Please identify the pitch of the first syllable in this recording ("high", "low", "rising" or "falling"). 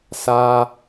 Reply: low